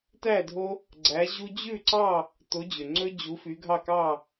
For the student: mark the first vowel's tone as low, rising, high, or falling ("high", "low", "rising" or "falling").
falling